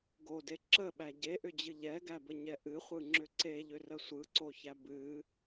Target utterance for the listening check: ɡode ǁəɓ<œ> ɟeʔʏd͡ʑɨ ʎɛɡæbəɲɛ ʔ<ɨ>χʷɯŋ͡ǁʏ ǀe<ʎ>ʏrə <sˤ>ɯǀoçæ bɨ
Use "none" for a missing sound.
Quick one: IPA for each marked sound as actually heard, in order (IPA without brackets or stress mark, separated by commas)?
æ, ɨ, ʎ, sʷ